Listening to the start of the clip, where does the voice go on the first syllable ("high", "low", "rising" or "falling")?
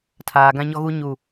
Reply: low